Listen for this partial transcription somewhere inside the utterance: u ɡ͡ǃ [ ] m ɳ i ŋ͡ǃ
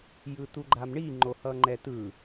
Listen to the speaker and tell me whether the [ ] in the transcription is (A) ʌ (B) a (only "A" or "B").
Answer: B